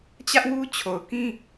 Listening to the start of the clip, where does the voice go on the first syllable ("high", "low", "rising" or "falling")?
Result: high